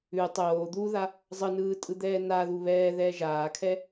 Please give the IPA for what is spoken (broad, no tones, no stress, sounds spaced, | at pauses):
ʉ tˤ oː d̪ u ð a | zˤ ɯ n ɯː tʼ ɯ d̪ ɛː n a ð u β ɛː ð ɛː ʒ aː kʰ ɛ